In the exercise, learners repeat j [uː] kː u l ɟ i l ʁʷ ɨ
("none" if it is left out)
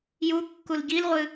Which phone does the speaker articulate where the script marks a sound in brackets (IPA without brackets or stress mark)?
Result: u